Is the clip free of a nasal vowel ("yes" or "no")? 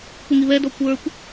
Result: yes